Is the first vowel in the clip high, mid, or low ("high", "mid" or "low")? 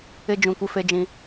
high